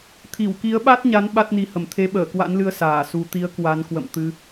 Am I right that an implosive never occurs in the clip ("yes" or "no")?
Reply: no